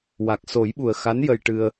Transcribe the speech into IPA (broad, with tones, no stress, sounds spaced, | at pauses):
w a˨˩ k̚ s o˨˩˦ j ɓ u˨˩ ə̯ x a˧˥ n j ə˧ j ʈ ɨ˧ ə̯